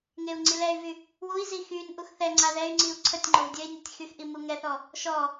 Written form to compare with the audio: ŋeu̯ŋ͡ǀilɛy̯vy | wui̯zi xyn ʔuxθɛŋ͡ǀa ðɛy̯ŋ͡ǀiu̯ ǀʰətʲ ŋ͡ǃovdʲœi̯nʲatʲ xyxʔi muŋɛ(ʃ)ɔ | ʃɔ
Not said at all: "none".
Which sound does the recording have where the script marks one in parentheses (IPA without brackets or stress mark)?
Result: θ